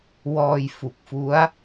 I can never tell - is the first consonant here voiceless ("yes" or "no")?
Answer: no